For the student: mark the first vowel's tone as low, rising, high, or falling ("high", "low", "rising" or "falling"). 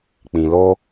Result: low